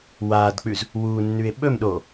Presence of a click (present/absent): absent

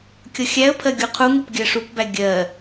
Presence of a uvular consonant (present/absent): present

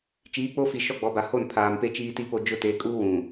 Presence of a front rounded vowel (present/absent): absent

